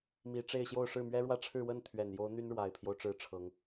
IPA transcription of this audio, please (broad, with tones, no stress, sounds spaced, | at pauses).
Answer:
m i˧˥ ʈ͡ʂ e˥˧ ɪ̯ ɕ j o˥˧ ʊ̯ ʂ ɻ̩˥˩ m ɥ ɛ˥ ɻ w ä˥ ʈ͡ʂʰ ɻ̩˥˧ w ə˥˩ n t̪ʰ ɥ ɛ˨˩ n j o˧˥ ʊ̯ n̪ y˥ n ɻ w a˨˩ ɪ̯ pʰ j o˦ ʊ̯ ʈ͡ʂ ɻ̩˥˩ ʈ͡ʂʰ ɤ˧˥ ŋ